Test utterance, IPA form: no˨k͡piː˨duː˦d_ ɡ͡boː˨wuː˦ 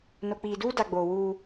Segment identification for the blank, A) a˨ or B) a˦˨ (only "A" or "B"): A